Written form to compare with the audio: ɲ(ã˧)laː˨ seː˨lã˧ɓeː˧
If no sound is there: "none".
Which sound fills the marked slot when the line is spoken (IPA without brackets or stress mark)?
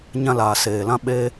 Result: ã˧